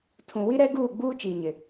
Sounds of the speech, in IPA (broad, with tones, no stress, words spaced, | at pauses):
tʰũ˨wi˦ ɾɛ˦ɡuː˦˨ ɡ͡buː˦ t͡ʃiː˨ɲɪ˨